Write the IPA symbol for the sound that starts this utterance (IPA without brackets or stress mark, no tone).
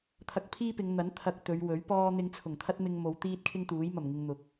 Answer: t̪ʰ